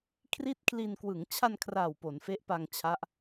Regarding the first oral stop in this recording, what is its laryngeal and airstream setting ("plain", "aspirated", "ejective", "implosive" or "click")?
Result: aspirated